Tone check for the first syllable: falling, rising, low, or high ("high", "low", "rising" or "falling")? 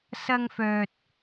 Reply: high